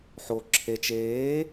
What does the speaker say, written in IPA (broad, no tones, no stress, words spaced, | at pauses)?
ħo ǁʰe t͡ʃeː